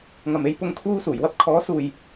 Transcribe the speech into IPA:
ŋɐ˨me˧j pʊ˥ŋkʰuː˥suː˨˩j wɐ˥p̚kʰɔː˨˥suː˨j

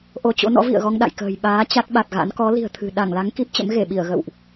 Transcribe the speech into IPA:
ʔo˧t͡ɕo̰˧˥ nɔ̰˧˥vḭ˧˨ə̯ɣɔ˧ŋ ɗa̰˧˨jkə̤ː˨˩j ɓaː˨˦ t͡ɕa˦˥t̚ɓa˨˩t̚ɣa̰˧˥n kɔ˨˦li̤˨˩ə̯ t̪ʰɨ̤˨˩ ɗa˧˩ŋla˨˦ŋ ki˦˥p̚t͡ɕə̰˧˥mɣe˧˩ɓi˧˩ə̯ ɣə̰˧˨wʔ

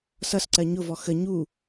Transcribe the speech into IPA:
sʌsǀɜ ɲʊvɔ xə ɲu

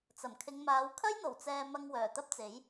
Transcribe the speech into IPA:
t͡sɐ˨˩mkʰɪ˨˧ŋmaː˨˧w kʰɐ˥jn̪o˨˩wt͡sɛː˨ mɐ˧ŋwœː˨˩t̪ɐ˥p̚t͡se˨˥j

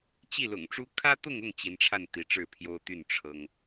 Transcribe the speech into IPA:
t͡ɕi˥˩lʊ̰˨˩ŋʈ͡ʂu˥ kʰä˥t̪ʊ˥˧ŋʊ˥˩ŋ t͡ɕi˧˥nʈ͡ʂʰa˥˩n t̪i˧˥ʈ͡ʂɻ̩˥˩pʰjo˥ʊ̯t̪y˥˩n ʈ͡ʂʰɤ˥ŋ

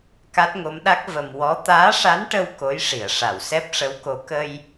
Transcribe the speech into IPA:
ka˦˥t̚ŋo˧˥mɗa˦˥k̚ və˧m wɔ˧˥ t̪aː˧˥ʂa˧˥nʈə˧w ko˧˥jʂi˨˩˨ə̯ʂa˨˩˨wsɛ˦˥p̚ ʂə˧˥wko˧˥ kə˧j

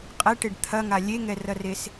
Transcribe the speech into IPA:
qʼɛʈeɖ t̪ʰɐŋa lʲeŋɛrɐres

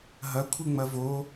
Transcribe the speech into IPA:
ɦɐkʷʰɨŋ͡mɐ vo

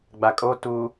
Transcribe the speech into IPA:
ɡ͡bakʼo tu

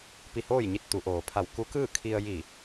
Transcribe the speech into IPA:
pi˧hoː˥˨jɲi˧t̚ t̪u˩˧ʔoː˩pʰa˧˩w ku˧˥kɯː˥˨kʰi˧ə̯ ji˧˩

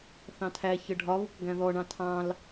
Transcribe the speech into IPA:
θɑ̃tʰæçə ɖʱɒβʊk ɡæ̃ðɔɳɑ̃ tʰɑ̃l

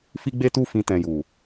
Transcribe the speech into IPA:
fi˦ɡ͡be˦tu˦fĩ˧ tɛ̃˨ju˨

